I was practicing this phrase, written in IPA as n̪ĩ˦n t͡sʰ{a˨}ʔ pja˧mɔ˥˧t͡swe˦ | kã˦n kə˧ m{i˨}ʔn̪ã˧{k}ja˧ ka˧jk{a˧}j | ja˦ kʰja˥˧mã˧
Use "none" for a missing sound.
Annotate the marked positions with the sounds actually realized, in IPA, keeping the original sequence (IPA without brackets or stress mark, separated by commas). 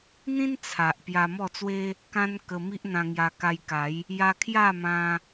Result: a˨, i˦, ŋ, a˨˦